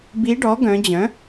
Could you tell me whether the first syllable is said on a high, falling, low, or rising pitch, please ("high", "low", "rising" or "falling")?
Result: rising